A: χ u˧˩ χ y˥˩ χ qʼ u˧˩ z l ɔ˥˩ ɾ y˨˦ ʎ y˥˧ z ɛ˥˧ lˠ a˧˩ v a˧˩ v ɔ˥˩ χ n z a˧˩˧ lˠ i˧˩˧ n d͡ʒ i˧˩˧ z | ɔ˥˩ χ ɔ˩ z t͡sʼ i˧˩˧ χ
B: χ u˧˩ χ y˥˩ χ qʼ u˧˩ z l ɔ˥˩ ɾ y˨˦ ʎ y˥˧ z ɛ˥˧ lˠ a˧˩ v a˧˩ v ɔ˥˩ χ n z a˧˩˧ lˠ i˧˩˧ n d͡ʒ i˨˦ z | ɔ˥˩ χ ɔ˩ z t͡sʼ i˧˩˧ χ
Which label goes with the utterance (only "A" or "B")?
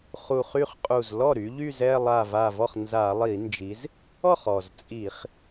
B